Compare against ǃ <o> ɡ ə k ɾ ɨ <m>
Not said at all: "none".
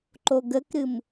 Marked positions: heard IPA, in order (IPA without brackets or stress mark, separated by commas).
o, m